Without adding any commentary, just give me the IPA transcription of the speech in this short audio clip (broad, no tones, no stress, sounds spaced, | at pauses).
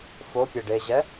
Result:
f o pʲ e ɖ e ʑ ɛ